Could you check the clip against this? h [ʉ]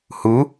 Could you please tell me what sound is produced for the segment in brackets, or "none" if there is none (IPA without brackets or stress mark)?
u